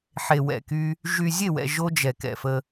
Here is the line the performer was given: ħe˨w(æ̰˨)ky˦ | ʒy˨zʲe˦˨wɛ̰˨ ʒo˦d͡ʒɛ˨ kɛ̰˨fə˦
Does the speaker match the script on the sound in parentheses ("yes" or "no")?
no